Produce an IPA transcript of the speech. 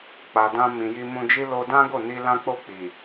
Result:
k͡p a˨ d ã˧ m ĩ˨ j i˧ m ũ˧ d͡ʒ i˦ l o˧ d ã˦ ɡ o˦˨ n i˧ l ã˦ k͡p o˦˨ k͡p i˨

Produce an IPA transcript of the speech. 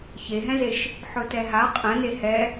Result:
ç e ɦ ɛ̃ z e ʃ | ħ ɵ t ɛ ɦ a qʼ ɛ̃ n e h ɛ

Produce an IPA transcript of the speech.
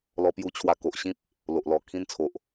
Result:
l ɔ˧ p j u˧ t͡ɕʰ w a˧ k o˨ ʔ ɕ ĩ˦ p̚ | l o˨ ʔ l ɔ˨˩ kʰ ĩ˧ n t͡sʰ o˨ ʔ

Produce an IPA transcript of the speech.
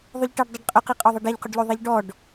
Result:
ðˤ ʊ ʎ ʈ ɛ ɖ dˤ ɛ ɖ qʼ ʊ q i qʼ ɔ ðˤ e ɖ ɛ ʎ q ʊ ɖ ʎ o ðˤ i ʎ ɖ ɔ ɖ

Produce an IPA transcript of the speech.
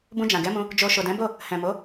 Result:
b ũ˧ d͡ʒ ã˨ ɡ ɛ˨˦ m ũ˧ | d͡ʒ o˨ ʃ o˨ d ɛ̃˨˦ b o˦˨ | h ɛ̃˨ m o˨˦

